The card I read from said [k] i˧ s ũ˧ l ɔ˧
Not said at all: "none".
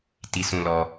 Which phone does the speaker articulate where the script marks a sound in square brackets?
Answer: t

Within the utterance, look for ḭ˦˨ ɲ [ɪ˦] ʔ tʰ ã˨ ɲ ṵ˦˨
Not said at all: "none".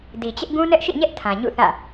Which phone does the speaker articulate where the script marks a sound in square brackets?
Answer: ɛ˦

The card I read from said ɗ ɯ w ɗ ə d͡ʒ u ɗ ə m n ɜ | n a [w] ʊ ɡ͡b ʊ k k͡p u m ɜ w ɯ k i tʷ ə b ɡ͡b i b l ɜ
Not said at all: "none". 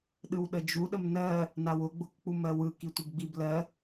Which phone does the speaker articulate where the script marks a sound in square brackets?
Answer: w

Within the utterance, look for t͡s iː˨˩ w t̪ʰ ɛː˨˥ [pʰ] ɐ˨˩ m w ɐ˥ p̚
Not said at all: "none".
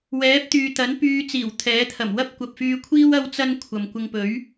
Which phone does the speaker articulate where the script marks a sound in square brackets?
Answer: t̪ʰ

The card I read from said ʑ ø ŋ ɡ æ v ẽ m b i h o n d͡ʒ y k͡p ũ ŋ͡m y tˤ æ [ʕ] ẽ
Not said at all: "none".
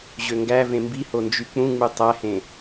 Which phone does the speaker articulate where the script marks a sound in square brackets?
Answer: h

